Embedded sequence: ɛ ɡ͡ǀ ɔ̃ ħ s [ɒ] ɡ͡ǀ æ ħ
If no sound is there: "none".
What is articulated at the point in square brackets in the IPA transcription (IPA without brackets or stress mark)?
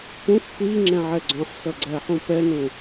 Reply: ʌ